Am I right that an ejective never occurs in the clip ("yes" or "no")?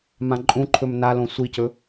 no